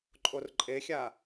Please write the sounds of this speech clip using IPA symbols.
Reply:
ǃʼ o r ǃʼ e xʲ a

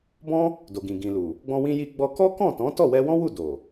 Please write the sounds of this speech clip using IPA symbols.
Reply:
b ɔ̃˦ | d o˨ ɡ ĩ˨ ɡ ĩ˨ l u˨ | ɡ͡b ɔ̃˧ w ĩ˧ j i˧ ɡ͡b ɔ˧ k ɔ˦ k ɔ̃˦˨ t ɔ̃˨˦ t ɔ˦˨ w ɛ˧ w ɔ̃˦ w u˦˨ d o˨

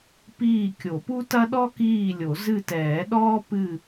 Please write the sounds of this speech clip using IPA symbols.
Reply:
p iː˦˨ kʲ o˨˩˦ p u˥ t ɐ˥ ɗ ɔ˥ k iː˦˨ lʲ o˨˩˦ z ɨ˦˨ t ɛː˨˩˦ ɗ ɔː˥ p ɨ˦˨

